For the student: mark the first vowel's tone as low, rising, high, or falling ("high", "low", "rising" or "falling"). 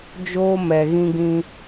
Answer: high